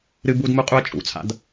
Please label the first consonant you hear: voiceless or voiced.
voiced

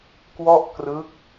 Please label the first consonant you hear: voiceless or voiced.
voiceless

